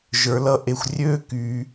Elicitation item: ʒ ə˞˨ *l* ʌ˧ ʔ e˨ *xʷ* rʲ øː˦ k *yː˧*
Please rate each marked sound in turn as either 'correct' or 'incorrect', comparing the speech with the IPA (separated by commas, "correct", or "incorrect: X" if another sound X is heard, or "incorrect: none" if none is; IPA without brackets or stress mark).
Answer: correct, correct, correct